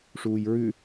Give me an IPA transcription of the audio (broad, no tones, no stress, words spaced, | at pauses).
ʂuːjɹʉ